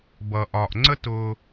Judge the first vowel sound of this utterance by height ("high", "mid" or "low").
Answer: mid